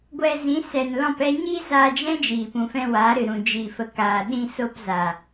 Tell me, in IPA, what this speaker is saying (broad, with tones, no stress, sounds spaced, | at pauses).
ɡʷ ɛ˧ z ĩ˨˦ s ɛ˨ n l ɔ̃˦˨ p ɛ˦ ɲ i˦ z aː˧ d͡ʒ ɛ̃˦ d͡ʒ iː˨ p ũ˨ f ɛ̃˧ w aː˨˦ ɾ ɨ˨ ɾ ũ˨ d͡ʒ i˨ f ə˨ k aː˨ ɗ ĩ˧ s o˧ p z a˨